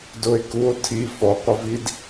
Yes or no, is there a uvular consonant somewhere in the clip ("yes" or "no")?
yes